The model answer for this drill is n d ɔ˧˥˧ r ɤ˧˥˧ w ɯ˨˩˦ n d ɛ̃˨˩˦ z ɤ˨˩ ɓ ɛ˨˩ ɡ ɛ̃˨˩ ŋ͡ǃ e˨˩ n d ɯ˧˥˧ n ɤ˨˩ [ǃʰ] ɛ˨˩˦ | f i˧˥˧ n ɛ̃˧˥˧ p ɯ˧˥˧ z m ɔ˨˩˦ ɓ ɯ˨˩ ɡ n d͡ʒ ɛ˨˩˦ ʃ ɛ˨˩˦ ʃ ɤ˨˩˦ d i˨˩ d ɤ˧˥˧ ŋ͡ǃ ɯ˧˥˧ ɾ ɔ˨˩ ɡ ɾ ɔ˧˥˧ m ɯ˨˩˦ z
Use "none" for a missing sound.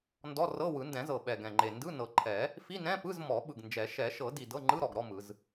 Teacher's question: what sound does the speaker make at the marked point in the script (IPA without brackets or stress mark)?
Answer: ǃʰ